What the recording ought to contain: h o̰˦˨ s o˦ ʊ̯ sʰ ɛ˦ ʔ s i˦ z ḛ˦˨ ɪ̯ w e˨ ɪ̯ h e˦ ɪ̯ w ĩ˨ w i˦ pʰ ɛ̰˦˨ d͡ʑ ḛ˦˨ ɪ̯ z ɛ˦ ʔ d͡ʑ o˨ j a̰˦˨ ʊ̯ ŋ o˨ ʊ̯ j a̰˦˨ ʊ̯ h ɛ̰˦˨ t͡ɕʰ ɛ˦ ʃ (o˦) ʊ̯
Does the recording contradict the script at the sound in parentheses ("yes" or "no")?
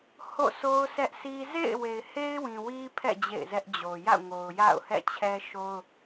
no